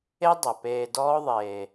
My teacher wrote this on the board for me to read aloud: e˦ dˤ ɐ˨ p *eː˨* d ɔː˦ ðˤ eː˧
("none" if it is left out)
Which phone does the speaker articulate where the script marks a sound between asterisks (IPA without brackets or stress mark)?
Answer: eː˧